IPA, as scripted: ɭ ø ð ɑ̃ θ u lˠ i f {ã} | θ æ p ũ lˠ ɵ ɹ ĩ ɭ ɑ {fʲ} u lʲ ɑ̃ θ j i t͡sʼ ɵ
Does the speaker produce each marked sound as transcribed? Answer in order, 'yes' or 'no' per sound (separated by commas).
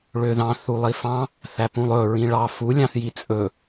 no, no